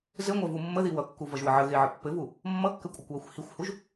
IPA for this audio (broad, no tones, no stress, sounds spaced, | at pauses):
z ɘ ŋʷ ɜ v u mː ə ð i w ʌ kː u v ʌ ʒ w ə ʕ ə ɣ e ʕ ə pː ɘ v u | mː ʌ kː ɘ kʷʼ ə kʷ w ɜ xʷ h i xʷ h u ʒ